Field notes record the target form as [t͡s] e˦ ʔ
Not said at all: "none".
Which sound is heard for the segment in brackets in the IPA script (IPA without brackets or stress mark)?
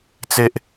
t͡s